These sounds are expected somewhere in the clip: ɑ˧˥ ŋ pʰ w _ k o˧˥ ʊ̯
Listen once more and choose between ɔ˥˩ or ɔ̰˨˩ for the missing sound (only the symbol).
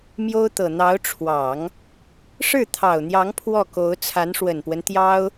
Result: ɔ˥˩